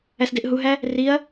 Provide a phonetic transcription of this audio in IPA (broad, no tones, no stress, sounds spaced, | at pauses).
æ s d e ʔ ɦ u ɦ æ | r i ɐ̯